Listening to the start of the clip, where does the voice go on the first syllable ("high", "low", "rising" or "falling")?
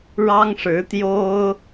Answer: high